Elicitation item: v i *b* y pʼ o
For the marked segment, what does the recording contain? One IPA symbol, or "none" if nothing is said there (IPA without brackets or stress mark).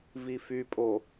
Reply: f